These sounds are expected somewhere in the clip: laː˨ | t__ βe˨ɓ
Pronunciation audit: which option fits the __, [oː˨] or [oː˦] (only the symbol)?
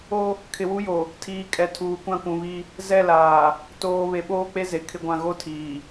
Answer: oː˨